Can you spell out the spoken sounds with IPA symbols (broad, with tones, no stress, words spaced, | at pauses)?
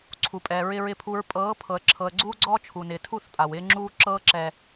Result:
ǀʰu˨pʼɛː˨ ɹɪ˨ɹɪ˨pʰu˨ɹ pʼɤː˨˦ pʰɤ˨ə̯ǁʰɤ˨ə̯ɡ͡ǀuː˦ɡ͡ǀɔː˦ t͡ʃʰu˨nɪː˨tʰu˦˨θ pʼa˨wɪː˦ŋ͡ǁuː˦ ǁɤː˦ǁɛ˨